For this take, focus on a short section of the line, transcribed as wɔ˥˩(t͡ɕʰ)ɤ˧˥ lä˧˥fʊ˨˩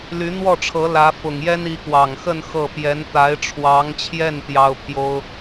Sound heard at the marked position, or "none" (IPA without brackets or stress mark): ʈ͡ʂʰ